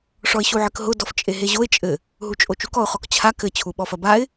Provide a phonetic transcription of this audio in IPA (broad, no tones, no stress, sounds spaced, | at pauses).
ʂ ɔ ɪ̯ ɕ u ʕ ɘ k ɦ ʊ d ɔ f t͡ʃʼ e ɦ e ʑ o ɪ̯ t͡ʃʼ ɘ | ɦ u t͡ʃʼ o t͡ʃ u k ɔ ʊ̯ χ ɔ k t͡ɕʰ a k ɘ t͡ɕʰ u ɓ ɔ f ɐ b a ɪ̯